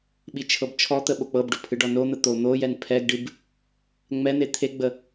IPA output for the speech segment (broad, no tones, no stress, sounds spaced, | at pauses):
ɓ i t͡ʃʰ ɤ b t͡ʃʰ ɔ t̪ ə ɓ o k͡p ɤ b ɖ o pʰ ɨ ɖ ɔ n o n̪ ə t̪ o n̪ o j ɛ n pʰ ɛ ɡ ɖ ɨ b | ŋ͡m ɛ n̪ e t̪ʰ e ɡ͡b ə